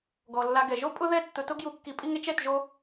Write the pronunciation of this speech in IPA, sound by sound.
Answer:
ɡɔ˨lːa˧ɡɛ˨ ʒo˦pʼʊ˦ðɛ˦ tːʊ˧to˦ɡju˧ kːi˧pʼi˦ŋe˦t͡ʃ ɛ˦˨tʒo˦

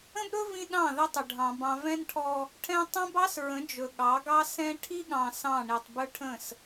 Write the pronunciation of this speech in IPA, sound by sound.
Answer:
ə̃˦bɾɵ˦ vĩ˦ɗɑ̃˦˨ðə˦tˤə˨ ɖʱɑ̃˨bɑ̃˨vɛ̃˦nʈʰɔ˦ | ʈʰɛ̃˦ tˤɛ̃˦bɑ˦sɹə̃˨˦ d͡ʒɵ˨ɠɑ˨˦ɡɑ˦ sɛ̃˦ ʈʰi˦ɠɑ̃˨ sɑ̃˦˨ ɳi˨tˤ bɵ˦ʈʰə̃˦˨s

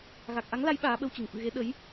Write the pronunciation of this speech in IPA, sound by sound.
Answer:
ɣa˨˩k̚ʔa˨˦ŋla˨˦j ɓaː˨˦ɓə˧wt͡ɕɨ˧˩ŋ fɨ̰˧˨ɣe˨˦ ɗə˨˦j

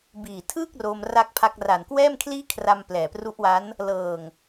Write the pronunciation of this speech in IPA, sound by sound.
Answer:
biː˨˩tʰɯː˥˩k̚ ro˧mra˦˥k̚pʰa˦˥k̚ ra˨˩nkwɛː˥˩mkʰliː˥˩ kʰra˧m plɛː˨˩pru˦˥ʔwa˦˥n | lɤː˨˩ŋ

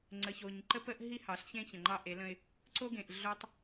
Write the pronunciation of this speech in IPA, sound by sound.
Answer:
ŋ͡ǀə˨ço˨ɲǃə˦pə˦ʔ ɦi˦hɑ˨ɬçẽ˦ çə̃˨ŋ͡ǃɑ˦ʔe˨˦lə̃˦ɪ̯ | ǀo˦ɡẽ˨ʔ ɮo˦tˤ

